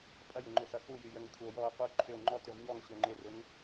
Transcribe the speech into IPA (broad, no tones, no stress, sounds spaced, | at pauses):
pʼ ɐ j ɪ ŋ͡ǃ ʏ x ɐ x u j y j ə ŋ kʷʰ ɐ o̯ j ɔ o̯ q u ǃʰ ʏ o̯ ŋ͡ǃ ɔ t y ʁ ɲ ɔ ŋ ɕ ø ŋ͡ǃ ɪ r ʊ ŋ